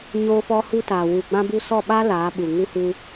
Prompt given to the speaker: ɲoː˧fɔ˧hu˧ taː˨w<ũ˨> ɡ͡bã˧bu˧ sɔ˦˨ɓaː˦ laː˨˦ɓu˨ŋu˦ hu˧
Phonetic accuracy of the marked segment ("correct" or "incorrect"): incorrect